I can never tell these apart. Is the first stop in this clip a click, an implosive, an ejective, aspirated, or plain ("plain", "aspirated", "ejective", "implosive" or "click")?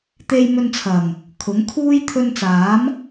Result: plain